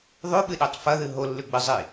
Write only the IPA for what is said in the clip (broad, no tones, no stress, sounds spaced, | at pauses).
ðˤ ʉ ɓ ɨ ɗ e tˤ f ɐ ð ɨ ɦ o lː ʉ ɡ͡b ɨ zˤ i